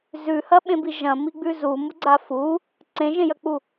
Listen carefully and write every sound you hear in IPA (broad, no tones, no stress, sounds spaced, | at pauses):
z ʉ h ɐ ɓ ẽ b i ʒ ɐ̃ m i ɡ͡b ʉ z u m u ɡ͡ǀ a f u | ǀ ẽ ʒ ẽ j ɐ k͡p u